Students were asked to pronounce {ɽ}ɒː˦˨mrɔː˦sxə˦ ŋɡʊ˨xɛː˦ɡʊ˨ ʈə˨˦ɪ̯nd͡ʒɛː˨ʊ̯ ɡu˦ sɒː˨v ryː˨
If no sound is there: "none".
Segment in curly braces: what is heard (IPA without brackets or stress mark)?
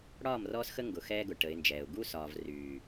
ɽ